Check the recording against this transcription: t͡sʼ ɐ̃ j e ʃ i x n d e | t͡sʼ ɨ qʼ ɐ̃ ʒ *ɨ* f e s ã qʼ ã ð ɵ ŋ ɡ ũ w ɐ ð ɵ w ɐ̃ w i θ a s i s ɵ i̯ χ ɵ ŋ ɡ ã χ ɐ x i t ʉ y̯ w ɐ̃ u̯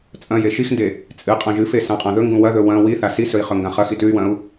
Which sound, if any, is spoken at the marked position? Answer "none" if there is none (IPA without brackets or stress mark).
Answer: ɨ